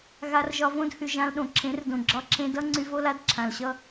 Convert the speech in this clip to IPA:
ɣ a˧ r ʒ ɒ˧ v õ˦ d h y˨ ʒ ã˧ l ɗ õ˨ ǁʰ ẽ˨˦ r d õ˨ ɡ͡ǁ ɒ˧ ǁʰ ẽ˧ d ʌ˦ ŋ͡ǀ y˧ v o˦ l a˦ d ǁʰ ã˨ l ɕ ʌ˦

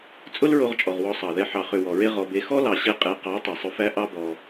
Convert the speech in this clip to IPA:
t͡sʼ ʊ˦ l ɹ o˧ ʁ t͡ʃʼ ɔ˨ ʁ w ɔ˧ sˤ ɑ˨ ð ɛ˧ ħ ɑ˨ χ ʏ˨ w ɔ˨ ɹ e˦ ʁ ɔ˧ b e˧ x ɔ˦ l ɑ˨ ɕ e˧ qʼ e˨˦ q ɑ˨˦ tˤ ɛ˨ sˤ ʊ˧ f æ˦ ʔ ɑ˦ b ɔ˧

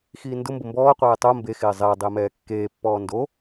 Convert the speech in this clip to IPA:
x iː n d ʊ m b ʊ m b ɔː qʷ ɛː tˤ o m b e x ɪː zˤ ɪː dˤ ɪː m ɛː kː eː pː ɔː n d o

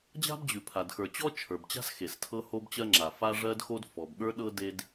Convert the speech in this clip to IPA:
d͡ʑ a̤˥ b d͡ʑ ʉ˩ pʰ a˩ d x ə˞˩ t͡ɕ ɔ˥ t͡ʃʰ ə˞˩ b t͡ɕ a̤˥ s x e˩ s tʰ ɤ˥ h o˥ b t͡ɕ ɜ˥ ŋ͡ǁ a˩ f a˥ ʐ ɜ˥ d x o˥ d f ɔ˩ b ɠ ə˞˥ ɗ ɤ˥ d e˥ d

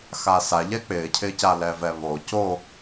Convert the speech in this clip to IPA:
x a s a ʎ ɛ k͡p ɪː cʰ ɪː c a l ɛ v ɛ β o c o

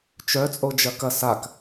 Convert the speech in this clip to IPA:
t͡ʃ œ t͡sʼ o d͡ʒ ɐ k ɐ s a k

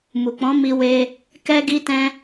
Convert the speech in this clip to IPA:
m u˨ k͡p ɔ̃˨˦ m i˧ w e˧ | k ɛ˧ ɡ i˧ t ɛ̃˧

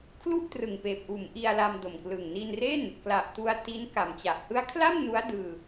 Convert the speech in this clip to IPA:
kʰ l u˥˩ ʔ t r ɯ˨˩ ŋ p eː˨˩ p̚ ʔ uː˩˦ m ʔ i˧ a̯ l a˧ m d o˨˩ m k l ɯ˨˩ ŋ n i˧ n r e˥˩ n | k l a˨˩ ʔ t u˧ a̯ t i˦˥ n k a˩˦ m t͡ɕ a˨˩ ʔ h ɯ˦˥ a̯ kʰ l a˥˩ m n u˦˥ a̯ d ɯː˧

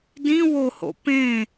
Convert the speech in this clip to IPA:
d ĩ w o h o̰ p ẽ

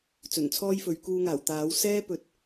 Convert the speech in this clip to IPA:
t͡s ɵ˨˩ n t͡sʰ ɔː˥ j f ɵ˨˥ ɥ k uː˧ ŋ aː˨˩ w t̪ aː˨˥ w s ɛː˥ p ɵ˨ t̚

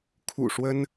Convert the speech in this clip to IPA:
kʰ ṵ˨˩ ʂ w ə˥ n

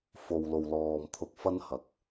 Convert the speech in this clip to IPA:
f o˨ w l o˨ w l ɔː˨ m t̪ʰ ʊ˧ k̚ f ɐ˥ n h ɐ˨˥ k̚

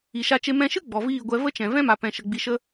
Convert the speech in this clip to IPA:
i˨ ʃ a˧ t͡ʃ e˧ m ɛ̃˧ ʃ ɨ˦ ɡ͡b ɔ˨ v iː˦˨ ɡʷ ɛ˧ v ə˦ t͡ʃ ɛ̃˨ v ɛ̃˦ m a˨ p ɛ̃˨ ʃ ə˨ ɡ͡b i˨ ʃ ə˧

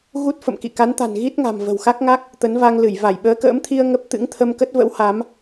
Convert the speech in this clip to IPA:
ɣ u˦˥ t̚ f ə̰˧˨ m k ḭ˧˨ k a˨˦ n t̪ a̤˨˩ n ɣ i˦˥ t̚ ŋ a̤˨˩ m v ə̤˨˩ w x a˦˥ k̚ ŋ a˦˥ k̚ | t̪ ə˨˦ n v a˧ ŋ l ɨ˧˩ j v a˧˩ j ɓ əː˨˦ k ə̰ː˧˥ m t̪ʰ i˧ ə̯ ŋ ə˦˥ p̚ t̪ ɨ̰˧˥ ŋ t̪ʰ ə˧ m k ə˦˥ t̚ v ə̰˧˥ w h a˨˦ m

